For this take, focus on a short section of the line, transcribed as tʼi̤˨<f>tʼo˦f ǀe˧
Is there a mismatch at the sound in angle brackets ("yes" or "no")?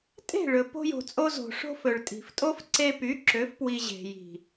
no